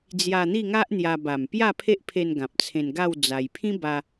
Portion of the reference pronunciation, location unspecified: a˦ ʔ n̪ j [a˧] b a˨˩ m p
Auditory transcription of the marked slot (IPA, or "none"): a˧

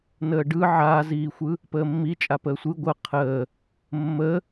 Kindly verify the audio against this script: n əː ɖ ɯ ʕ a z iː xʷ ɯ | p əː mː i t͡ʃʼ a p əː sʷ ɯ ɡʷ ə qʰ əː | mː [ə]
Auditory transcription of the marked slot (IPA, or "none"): ə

